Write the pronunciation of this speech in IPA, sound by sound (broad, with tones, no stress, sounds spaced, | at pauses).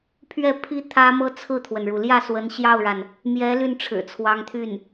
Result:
pʰ ɥ ɛ˥˩ pʰ i˥ t̪ʰ ä˥ m ɤ˥ t͡sʰ ɹ̩˥˩ t̪ʰ w ə˩ n ɻ u˩ l j ä˥˩ s w ə˧˥ n ɕ j ɑ˥˩ ʊ̯ ɻ a˩ n | m j ɛ˧˥ l y˥˩ n ʈ͡ʂʰ ɻ̩˨˩ t͡sʰ w ɑ˧˥ ŋ t̪ʰ y˥˩ n